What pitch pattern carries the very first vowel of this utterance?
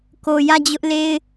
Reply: low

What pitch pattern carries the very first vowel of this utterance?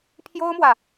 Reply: high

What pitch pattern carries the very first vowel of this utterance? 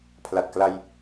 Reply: low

